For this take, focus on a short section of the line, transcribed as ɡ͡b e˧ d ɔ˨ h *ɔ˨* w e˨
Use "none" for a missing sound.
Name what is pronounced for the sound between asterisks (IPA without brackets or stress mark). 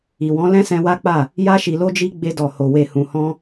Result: o˨